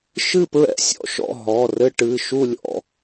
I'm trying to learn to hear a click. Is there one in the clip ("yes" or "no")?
no